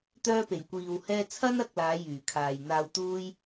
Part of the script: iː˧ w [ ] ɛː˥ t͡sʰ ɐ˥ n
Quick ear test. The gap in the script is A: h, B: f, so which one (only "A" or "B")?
A